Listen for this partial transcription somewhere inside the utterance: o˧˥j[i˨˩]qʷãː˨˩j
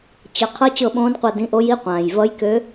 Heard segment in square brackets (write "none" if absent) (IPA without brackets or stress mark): i˧˥˧